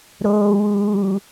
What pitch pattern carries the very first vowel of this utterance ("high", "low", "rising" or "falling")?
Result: low